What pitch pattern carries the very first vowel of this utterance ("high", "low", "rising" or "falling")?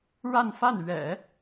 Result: falling